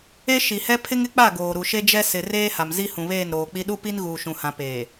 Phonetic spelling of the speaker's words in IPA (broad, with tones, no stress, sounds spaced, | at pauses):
e˦ ʃ i˨ h ɛ˦ pʰ ɪ˦ ŋ ɪ˦ k͡p a˦˨ ɡ oː˨ ɾ u˨ ʃ e˦ d͡ʒ ɛ˦ s ɪ˨ r eː˦ h a˨ m z i˦ h ũ˨ β eː˦˨ n ɾ oː˨ k͡p i˦ ɗ u˦ p i˦ n ɣ uː˨ ʃ ũ˨ h ã˨ p eː˨